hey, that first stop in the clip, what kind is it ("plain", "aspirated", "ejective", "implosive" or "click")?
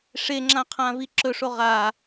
click